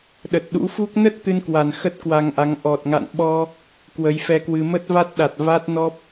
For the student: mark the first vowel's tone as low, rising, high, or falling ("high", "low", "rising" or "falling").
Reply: low